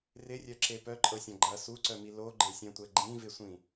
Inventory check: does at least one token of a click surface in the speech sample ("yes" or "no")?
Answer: yes